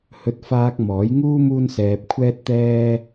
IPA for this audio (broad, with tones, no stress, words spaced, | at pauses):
hɵ˧t̚faː˧k̚ mɔː˨˥jŋuː˥ muː˥nsɛː˧p̚kʷʰɛː˥t̚t̪ɛː˥